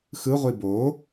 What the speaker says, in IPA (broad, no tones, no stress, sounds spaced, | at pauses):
x ɯ ʁʷ i b o